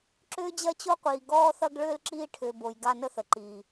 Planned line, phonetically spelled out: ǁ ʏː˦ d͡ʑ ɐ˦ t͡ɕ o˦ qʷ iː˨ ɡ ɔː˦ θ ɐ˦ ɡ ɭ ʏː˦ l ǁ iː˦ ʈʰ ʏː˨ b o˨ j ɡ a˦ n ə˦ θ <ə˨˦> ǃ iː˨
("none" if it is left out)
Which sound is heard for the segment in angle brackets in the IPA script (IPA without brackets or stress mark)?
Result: ə˨